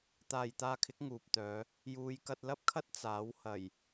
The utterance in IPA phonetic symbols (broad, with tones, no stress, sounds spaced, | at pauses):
t̪ aː˨ j t̪ aː˧ kʰ ɪ˨˥ k̚ ŋ uː˨ p̚ t̪ œː˨˧ | j uː˨˧ j k ɐ˧ t̚ l ɐ˥ p̚ kʰ ɐ˥ t̚ t͡s aː˨˥ w h ɐ˨˩ j